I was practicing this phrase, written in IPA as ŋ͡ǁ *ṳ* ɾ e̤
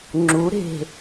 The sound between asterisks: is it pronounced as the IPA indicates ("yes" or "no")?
no